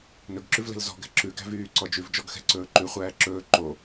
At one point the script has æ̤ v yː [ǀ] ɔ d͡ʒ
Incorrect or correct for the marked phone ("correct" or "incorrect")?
correct